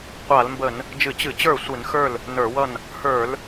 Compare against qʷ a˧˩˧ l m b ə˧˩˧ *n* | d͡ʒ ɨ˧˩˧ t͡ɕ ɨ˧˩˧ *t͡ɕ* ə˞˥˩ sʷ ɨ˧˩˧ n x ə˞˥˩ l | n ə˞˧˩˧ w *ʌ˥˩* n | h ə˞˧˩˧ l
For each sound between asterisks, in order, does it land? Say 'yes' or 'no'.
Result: yes, yes, yes

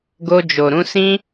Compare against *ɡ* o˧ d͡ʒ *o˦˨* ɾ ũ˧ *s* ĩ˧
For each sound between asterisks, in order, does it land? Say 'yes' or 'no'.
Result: yes, no, yes

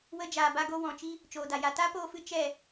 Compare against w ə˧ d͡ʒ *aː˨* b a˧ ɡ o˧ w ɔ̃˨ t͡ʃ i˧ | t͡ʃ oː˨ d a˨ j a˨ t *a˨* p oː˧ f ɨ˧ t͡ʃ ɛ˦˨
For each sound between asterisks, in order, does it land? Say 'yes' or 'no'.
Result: yes, no

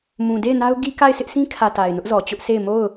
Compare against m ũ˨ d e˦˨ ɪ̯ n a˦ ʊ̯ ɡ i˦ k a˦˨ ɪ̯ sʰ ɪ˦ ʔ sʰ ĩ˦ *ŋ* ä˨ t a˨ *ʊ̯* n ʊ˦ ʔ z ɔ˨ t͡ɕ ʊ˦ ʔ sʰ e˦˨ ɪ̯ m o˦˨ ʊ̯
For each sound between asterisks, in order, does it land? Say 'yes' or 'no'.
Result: no, no

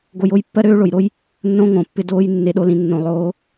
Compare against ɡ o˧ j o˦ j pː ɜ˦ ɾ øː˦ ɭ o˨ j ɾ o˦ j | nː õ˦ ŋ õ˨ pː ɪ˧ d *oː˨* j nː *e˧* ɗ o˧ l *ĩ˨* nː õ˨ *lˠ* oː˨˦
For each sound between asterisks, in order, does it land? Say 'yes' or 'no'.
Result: no, yes, yes, yes

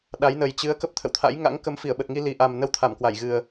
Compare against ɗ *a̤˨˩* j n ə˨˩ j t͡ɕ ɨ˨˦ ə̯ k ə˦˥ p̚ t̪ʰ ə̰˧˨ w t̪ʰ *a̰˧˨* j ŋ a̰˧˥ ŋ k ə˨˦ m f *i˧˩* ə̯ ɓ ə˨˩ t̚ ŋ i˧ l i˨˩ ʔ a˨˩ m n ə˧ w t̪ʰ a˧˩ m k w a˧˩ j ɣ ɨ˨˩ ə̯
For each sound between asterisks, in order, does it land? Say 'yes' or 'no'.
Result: no, no, yes

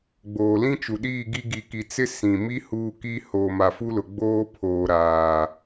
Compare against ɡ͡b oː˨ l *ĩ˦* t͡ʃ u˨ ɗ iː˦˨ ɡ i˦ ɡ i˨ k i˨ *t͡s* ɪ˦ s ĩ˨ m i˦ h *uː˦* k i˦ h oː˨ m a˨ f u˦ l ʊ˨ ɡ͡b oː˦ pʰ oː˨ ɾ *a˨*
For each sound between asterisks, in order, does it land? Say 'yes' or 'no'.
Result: yes, yes, yes, no

